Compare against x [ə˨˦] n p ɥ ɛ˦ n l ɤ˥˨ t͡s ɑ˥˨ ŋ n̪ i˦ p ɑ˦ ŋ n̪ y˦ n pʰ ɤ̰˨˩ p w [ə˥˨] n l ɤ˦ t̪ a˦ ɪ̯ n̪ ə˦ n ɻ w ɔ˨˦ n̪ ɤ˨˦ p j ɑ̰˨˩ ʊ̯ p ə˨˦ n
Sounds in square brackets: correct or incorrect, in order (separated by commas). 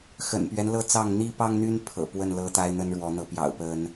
incorrect, correct